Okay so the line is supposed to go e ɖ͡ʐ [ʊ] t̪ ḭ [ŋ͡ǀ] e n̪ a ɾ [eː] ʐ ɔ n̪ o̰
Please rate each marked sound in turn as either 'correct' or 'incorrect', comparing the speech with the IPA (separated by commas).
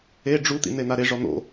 incorrect, incorrect, incorrect